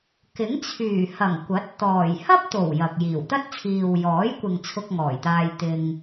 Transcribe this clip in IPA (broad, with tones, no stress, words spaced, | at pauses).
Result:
kɪ˨˥ŋ t͡sʰyː˨˩hɐ˨˩ŋ kʷɐ˨˥t̚ t̪ɔː˨˩j hɐ˥p̚t̪o˨˩w jɐ˨k̚ jiː˨˩wt̪ɐ˥t̚t͡sʰiː˨w jɔː˨˥jkʷɪ˨ŋ t͡sʰʊ˧k̚ŋɔː˨˩jt̪aː˧j t̪ɪ˧ŋ